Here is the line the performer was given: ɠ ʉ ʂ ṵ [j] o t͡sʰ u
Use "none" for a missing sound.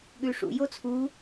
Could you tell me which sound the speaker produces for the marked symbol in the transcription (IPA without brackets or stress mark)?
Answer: j